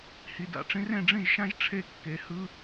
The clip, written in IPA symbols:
hi˨da̰˨ʈ͡ʂĩ˥r ẽ˥˨ɖ͡ʐĩ˥˨ʒʃã˥ʒ ʈ͡ʂʰe˥˨kːe˨hɯ˥

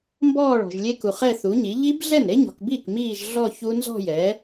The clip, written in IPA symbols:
mbɔː˥˧ɭɔ̤˨ʒlʲe˦˥ku˨χ ɛ˥˧θu˩˥ɲi˩˥ ʎi˦˥b ɮɛ˥˩nɾe˦˥ɲɔ̤˨kbiː˥˩k miː˥˧ʒ ɮɔ˥˧ çu˦˥nzɔ̤˥˧jɛ˩˥

